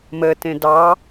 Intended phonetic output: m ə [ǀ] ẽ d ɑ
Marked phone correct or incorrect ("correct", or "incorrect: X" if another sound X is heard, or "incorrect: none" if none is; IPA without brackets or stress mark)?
incorrect: t